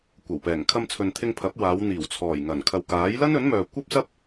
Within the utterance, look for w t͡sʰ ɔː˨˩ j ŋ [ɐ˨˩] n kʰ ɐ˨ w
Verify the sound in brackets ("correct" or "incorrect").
correct